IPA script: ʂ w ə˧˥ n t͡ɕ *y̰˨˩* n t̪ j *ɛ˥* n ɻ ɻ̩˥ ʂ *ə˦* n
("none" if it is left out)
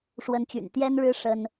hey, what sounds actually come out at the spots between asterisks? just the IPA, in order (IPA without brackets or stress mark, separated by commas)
y̰˨˩, ɛ˥, ə˥